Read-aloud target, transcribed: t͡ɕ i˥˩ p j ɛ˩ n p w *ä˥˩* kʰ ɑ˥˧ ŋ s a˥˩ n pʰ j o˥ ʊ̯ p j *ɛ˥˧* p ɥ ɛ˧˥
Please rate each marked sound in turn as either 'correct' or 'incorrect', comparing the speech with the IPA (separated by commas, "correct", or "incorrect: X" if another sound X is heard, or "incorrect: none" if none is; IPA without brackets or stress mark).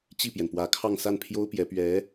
incorrect: ä˧˥, incorrect: ɛ˧˥